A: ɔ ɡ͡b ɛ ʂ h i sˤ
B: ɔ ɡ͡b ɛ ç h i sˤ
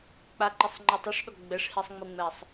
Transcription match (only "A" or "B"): A